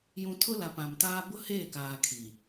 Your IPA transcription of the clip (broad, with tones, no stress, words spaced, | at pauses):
jũ˨ tʰʊ˦la˨ pã˨mtaː˦ bʊ˦heː˦˨kaː˨ kʰi˨